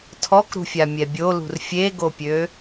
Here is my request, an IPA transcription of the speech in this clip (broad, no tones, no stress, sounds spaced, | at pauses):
tʰ ɔ k ɾ ṳ fʲ a mʲ ɛ bʲ o l ṳ r fʲ e ɡ o pʲ ø